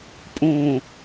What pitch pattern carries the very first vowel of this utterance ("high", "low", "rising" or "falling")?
low